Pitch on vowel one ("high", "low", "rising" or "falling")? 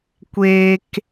high